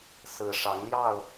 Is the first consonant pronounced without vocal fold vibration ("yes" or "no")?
yes